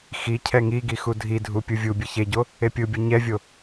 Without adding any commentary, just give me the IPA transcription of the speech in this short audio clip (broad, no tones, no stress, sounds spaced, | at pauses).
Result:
x i cʰ ɛ ŋ i ɡ i x u dʱ i dʱ u pʲ ɯ vʲ u bʲ ɯ ç e ɟ o | e pʲ ɯ bʲ o ɲ ɛ vʲ o